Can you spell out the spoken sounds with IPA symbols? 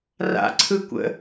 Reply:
r a̰ ǀʰ ɯ kʷ ə̰

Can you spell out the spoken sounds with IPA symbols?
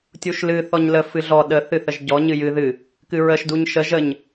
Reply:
tʲ u ʃ l ɨ θ ɔ ɲ l ə f ɨ ɮ ɔ ɗ ə θ ɨ θ ə ʒ ɟ ɔ ɲ ɨ j ɨ ð ɨ | k ɨ ɹ ə ʃ d u ɲ ʃ ə ʒ ə ɲ

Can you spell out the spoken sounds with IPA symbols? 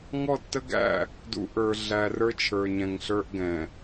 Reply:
ŋ ɔ˦˨ tː ə˦ ɡ æ̰˦˨ | d ṵ˨ ʔ ə˞˨ ɮ æ˨ r ə˞˦ t͡ʃʰ ə˞˨ ɲ ɛ̃˨ ŋ ɬ ə˞˦ ʔ ɡ ɛ̃˨

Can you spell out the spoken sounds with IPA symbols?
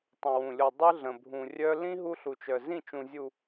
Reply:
tˤ ə̃˨ w ũ˨ lʲ o˨ dˤ ɯ˦ ɮ ə̃˨ bʱ ũ˨ rʲ œ˦ l ĩ˦ ɦ u˦ ɬ u˨ t͡ʃ œ˨ z ĩ˦˨ t͡ʃ ũ˨ zʲ u˨

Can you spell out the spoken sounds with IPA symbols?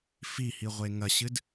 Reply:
f i h i ʁʷ e ŋ ɐ ɕ ɨ d

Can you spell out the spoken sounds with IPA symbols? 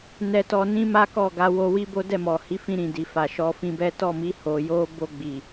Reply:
n ɛ˧ t ɔ˧ n ĩ˦ m a˦ k ɔ˦˨ ɡ a˧ w o˧ w i˦ b o˦ d ɛ˦˨ m ɔ˨ h i˨˦ f ĩ˧ ɾ ĩ˨ d i˨ f a˨ ʃ ɔ˧ f ĩ˧ b ɛ˦ t ɔ˦˨ m i˧ h o˨ j o˧ b o˧ ɡ͡b i˨

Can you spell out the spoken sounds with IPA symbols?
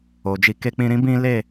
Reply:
o˨ d͡ʒ i˧ k e˧ k͡p ĩ˧ ɾ ĩ˦ b ĩ˦ l e˦˨

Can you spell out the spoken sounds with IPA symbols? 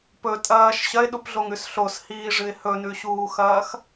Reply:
p ɵ tʼ ɐː ʃ ɕ ɐ ɪ̯ ɗ u p ɮ o ŋ ʉ s ɬ o s h iː ʐ ɨ ɪ̯ h ɵ n ʉ ɕ uː x ɐː x

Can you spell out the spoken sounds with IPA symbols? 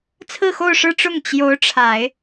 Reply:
t͡sʰ ɹ̩˥˧ x o˥˧ ʊ̯ ʂ ɻ̩˥˧ ʈ͡ʂ ʊ˥˩ ŋ t͡ɕ j o˧˥ ʊ̯ ʈ͡ʂʰ a˨˩˦ ɪ̯

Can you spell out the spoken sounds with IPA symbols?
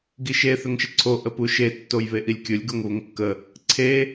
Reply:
ɡ i ʃ e θ ʏ ŋ ʃ ə ǀʰ o ʔ ə p u ʃ e tː o j β e ʔ i lʲ kʲ ʊ lʲ ɡ o ŋ β ʊ ŋ kː ə | ǀʰ e

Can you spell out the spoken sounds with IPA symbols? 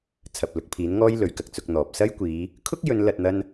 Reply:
t͡sʰ ɐ˨ p̚ l ʊ˨˥ k̚ pʰ iː˨˥ n ŋ ɔː˥ j l ɵ˨˧ ɥ k ɐ˨ k̚ t͡s ʊ˨˥ k̚ n̪ ɔː˨ p̚ s ɐ˥ j kʷ iː˨˧ | kʰ ʊ˥ k̚ j ɵ˨˧ n l ɐ˨ t̚ n̪ ɐ˧ n

